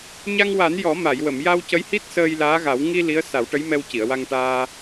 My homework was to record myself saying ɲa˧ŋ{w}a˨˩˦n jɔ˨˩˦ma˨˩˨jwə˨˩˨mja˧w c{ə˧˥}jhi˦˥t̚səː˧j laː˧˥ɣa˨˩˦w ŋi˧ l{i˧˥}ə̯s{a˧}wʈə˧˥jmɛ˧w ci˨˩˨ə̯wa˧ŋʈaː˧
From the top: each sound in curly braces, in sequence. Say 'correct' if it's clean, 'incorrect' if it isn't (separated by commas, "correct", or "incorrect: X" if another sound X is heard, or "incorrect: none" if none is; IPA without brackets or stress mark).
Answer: correct, correct, correct, incorrect: a˨˩˦